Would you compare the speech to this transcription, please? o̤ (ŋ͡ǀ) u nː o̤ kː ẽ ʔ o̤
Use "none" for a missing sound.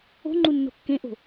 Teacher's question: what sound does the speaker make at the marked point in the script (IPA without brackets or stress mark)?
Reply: ŋ͡ǃ